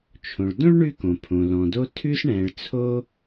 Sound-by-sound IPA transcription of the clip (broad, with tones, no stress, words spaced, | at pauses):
t͡ʃʰõ˩ɭ dõ˥ɭ ɳʉ˥kõ˩pʰõ˩ lɔ̃˩do˥ tʰʉ˥sɳɛ̃˩ɭ t͡sʰo˥